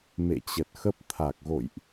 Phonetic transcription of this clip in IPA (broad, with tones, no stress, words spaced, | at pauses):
mḛ˧˨t͡ɕə˨˩t̚ xə˦˥p̚ t̪ʰa˨˩k̚ɣo̰˧˨jʔ